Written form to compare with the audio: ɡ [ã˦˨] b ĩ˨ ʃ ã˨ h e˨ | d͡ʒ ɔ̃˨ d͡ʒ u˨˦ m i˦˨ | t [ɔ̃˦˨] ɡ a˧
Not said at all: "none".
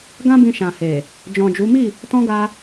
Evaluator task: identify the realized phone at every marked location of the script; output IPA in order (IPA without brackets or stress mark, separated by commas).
ã˧, ɔ̃˧